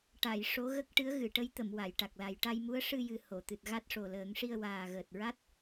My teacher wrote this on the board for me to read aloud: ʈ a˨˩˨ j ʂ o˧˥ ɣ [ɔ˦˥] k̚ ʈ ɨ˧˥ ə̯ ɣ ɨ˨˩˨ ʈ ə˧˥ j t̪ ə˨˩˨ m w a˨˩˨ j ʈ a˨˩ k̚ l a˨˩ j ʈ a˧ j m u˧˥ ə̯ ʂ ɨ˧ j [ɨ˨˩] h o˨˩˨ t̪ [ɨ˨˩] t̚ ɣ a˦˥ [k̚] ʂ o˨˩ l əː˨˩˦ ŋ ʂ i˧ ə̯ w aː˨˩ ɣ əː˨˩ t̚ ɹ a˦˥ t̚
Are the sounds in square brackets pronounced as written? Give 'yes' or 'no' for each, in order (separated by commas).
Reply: no, yes, yes, no